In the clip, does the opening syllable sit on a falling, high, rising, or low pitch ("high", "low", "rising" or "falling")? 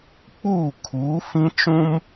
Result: falling